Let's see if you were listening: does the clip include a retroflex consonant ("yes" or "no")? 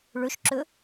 yes